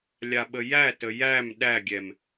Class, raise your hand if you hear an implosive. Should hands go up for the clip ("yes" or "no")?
yes